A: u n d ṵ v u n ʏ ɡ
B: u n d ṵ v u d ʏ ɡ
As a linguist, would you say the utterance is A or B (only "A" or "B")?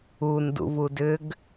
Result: B